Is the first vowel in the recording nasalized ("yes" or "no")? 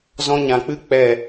yes